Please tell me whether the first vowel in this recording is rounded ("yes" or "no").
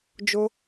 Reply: yes